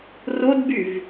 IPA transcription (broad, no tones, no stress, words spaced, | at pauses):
rodbyv